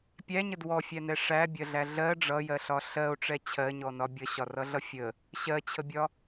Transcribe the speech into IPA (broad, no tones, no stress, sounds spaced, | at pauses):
pʲ æ ɲ ə d w ɔ fʲ æ n ɛ ʂ æ bʲ ɜ ɮ æ ɮ ɜ ɖ͡ʐ ʌ j ɜ ɬ ɒ ɬ ɜ o̯ ʈ͡ʂ ɛ t͡ɕʰ ɜ ɲ ɔ n ɒ bʲ ʌ ɕ ɒ r ʌ ɮ ʌ fʲ ə | ɕ ɜ t͡ɕʰ ə bʲ ɒ